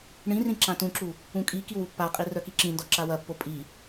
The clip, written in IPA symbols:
ɳĩrĩ ǁãtũǁu | ũkʼikiw upːaqʼi rœkiǁĩndɔ ǁawɐpːo pʼi

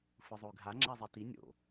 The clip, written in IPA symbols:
fɯzˤoy̯ɡʱa ŋ͡ǁɛzˤiti nʲo̰

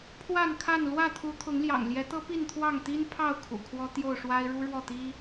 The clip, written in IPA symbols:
pʰwa˥˨nkʰa˥˨n lwä˥˨t̪ʰu˨˦t̪ʰʊ˨˦ŋljɑ̰˨˩ŋ ljɛ˨˦t̪ɤ˦pi˥˨n t̪ʰwɑ˥˨ŋt̪i˦npʰɑ˥˨ʊ̯ kʰṵ˨˩kʰwɔ˦ t̪jo˥˨ʊ̯ʂwa˦ɪ̯ ɻu˦ɻwɔ˥˨t̪i˦

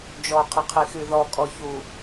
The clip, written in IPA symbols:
d͡ʒɔqʰəqʰixy ðɔkʼɔçu

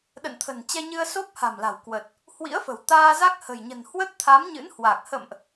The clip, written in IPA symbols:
ɗə̰˧˨nt̪ʰə̤˨˩nt͡ɕɛ˧ɲɨ˧ə̯ so˦˥p̚ha̤˨˩mla̤˨˩wkwə˨˩t̚ | hwḭ˧˥ə̯fə̤˨˩w t̪aː˧za˦˥k̚ hə̤˨˩jɲə̤˨˩n hwə˦˥t̚t̪ʰa˨˦mɲɨ̰˧˥nhwaː˨˩k̚ hə̰˧˨mʔ

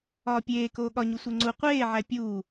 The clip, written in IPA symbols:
ɒːpʲeːkoː ɠɒɲu sʷeŋ͡ǀu qʷeːʕæ pʲuː

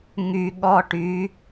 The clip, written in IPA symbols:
ŋy ɠɔʈy

